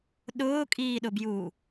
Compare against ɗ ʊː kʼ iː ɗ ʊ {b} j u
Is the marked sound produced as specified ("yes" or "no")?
yes